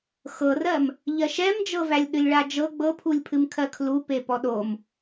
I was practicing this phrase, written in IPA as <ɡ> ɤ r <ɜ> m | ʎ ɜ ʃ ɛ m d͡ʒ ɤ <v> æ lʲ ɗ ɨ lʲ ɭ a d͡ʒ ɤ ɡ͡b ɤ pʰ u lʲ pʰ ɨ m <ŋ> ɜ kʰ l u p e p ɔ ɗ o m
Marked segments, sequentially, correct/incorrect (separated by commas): incorrect, correct, correct, incorrect